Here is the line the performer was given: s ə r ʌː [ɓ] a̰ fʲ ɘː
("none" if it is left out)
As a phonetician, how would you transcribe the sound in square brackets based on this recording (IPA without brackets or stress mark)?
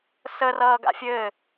ɡ